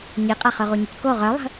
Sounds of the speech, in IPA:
ɲ i qʼ ɐ χ ø ʁ u ɲ u c k o ʁ œ lˠ ə̤

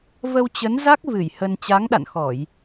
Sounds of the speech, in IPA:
v ə˧ w t͡ɕ ə˨˦ n z a˦˥ k̚ v ɨ˧˩ j h ə˧ n t͡ɕ a˨˦ ŋ ɗ a̰˧˨ n x ɔ˧˩˨ j

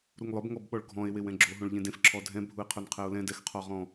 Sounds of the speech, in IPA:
ɾ u ŋ lˠ ʊ b ŋ ɔ b ɓ ɔ ɭ ɡʱ ɔ̃ e̯ w e w ɛ̃ ɡ͡ǁ o ɦ õ ɭ ʎ ẽ d ẽ f ǁʰ ɔ dʱ ɛ̃ bʱ u e̯ qʰ o n qʰ ɛ o̯ l ɛ̃ d ɛ x qʰ ɔ ʁ ɔ̃

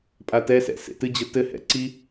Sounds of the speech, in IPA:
pʼ a t ɛ s ɛ̰ s ḛ t ɨ d͡ʑ ɘ t ɘ h ɛ̰ ǀ i

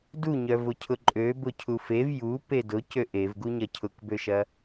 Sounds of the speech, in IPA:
d u ɲ œ v ʊ cʰ ʊ ǃʼ ø b ʊ cʰ u f e v j u p e d ʊ c ø ʔ e v ɡ u ɲ ɐ cʰ ʊ k b ø ʃ ɐ

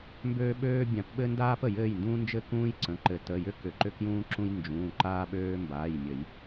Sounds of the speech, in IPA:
m b øː˦ ɓ øː˦ bʲ ã˨˩˦ p ɓ ɘ˦ n d aː˦ p ə˨˩˦ j ɘː˩˧˩ j n d ũː˦ n d͡ʒ ɘ˦ k ũː˦ j ǀ ə̃˩˧˩ ǃ ɘ˨˩˦ t ə˩˧˩ j ʏ˦ k ʏ˨˩˦ ǃ ʏ˦ k j ũː˦ ǁ ũ˦ j n d͡ʒ ũː˩˧˩ ǃ aː˦ ɓ øː˦ m b aː˩˧˩ j mʲ ə˨˩˦ j

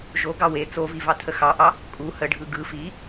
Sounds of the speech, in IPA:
ʒ o ɡ ɑ w e t͡s o v i v ɑ tʰ ə x ɑ ʔ ɑ | kʼ u h ə ɖʱ ɯ ɡ ɯ f i

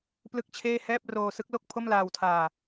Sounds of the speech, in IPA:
p l ɯ˥˩ k̚ t͡ɕʰ eː˥˩ h ɛː˥˩ p̚ r oː˧ s ɯ˦˥ k̚ l o˥˩ k̚ pʰ o˥˩ m l aː˧ w tʰ aː˧

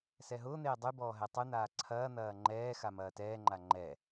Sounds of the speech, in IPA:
s ɛ ɦ ʊː n̪ eː dˤ y b ɔː ɦ ɛ tˤ y n̪ aː ǀʰ ɐː n̪ ɐː ŋ͡ǃ ɛː x a m ɐː t ɛː ŋ͡ǃ a ŋ͡ǃ ɛ

